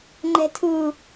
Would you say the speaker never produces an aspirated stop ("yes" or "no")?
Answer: no